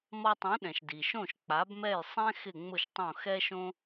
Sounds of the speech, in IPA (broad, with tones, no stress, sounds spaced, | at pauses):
m ɔ˧ tˤ ũ˩˥ ɗ ɛ̃˩ ʃ d i˩ ʃ õ˥˩ ʃ k͡p a˩˥ b m ɛ˥˩ j sˤ ɛ̃˥ x ɪ˥˩ ŋ͡m ʊ˥˩ ʃ tˤ õ˥˩ x ɛ˥ ʃ õ˥